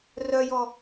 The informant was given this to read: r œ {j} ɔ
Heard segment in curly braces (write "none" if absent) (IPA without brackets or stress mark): j